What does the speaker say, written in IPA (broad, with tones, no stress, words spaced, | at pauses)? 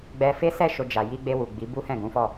ɡ͡bɛ˧ fe˦ sɛ˦˨ ʃo˧d͡ʒa˨ ji˧ɡ͡be˧ wu˨ɡ͡bi˨˦ bu˦hɛ̃˦˨ɡũ˨˦fɔ˦˨